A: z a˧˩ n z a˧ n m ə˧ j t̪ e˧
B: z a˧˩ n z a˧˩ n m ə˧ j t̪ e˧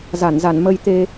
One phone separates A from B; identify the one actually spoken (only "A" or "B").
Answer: B